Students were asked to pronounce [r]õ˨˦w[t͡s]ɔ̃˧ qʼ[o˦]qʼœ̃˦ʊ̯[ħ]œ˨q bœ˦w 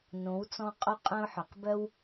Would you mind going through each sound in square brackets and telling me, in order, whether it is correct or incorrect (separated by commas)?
incorrect, correct, correct, correct